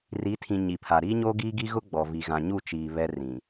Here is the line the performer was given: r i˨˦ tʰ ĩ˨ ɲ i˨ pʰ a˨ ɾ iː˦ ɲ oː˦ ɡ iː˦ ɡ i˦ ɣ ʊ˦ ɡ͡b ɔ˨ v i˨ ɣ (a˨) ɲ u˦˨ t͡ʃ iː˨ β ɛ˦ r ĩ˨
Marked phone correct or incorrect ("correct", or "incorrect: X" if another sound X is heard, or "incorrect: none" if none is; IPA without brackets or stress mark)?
incorrect: ã˨